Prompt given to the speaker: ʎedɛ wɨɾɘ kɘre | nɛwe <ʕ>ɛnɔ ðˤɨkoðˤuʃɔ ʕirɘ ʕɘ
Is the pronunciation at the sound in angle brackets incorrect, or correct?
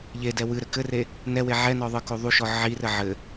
correct